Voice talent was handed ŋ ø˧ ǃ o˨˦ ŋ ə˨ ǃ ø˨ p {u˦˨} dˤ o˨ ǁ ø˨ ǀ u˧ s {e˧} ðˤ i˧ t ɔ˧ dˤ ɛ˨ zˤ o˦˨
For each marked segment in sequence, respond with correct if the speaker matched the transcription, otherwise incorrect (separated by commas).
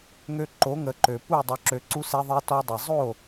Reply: correct, correct